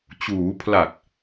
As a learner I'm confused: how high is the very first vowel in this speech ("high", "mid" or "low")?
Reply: high